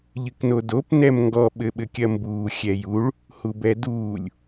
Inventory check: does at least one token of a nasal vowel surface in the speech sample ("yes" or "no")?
no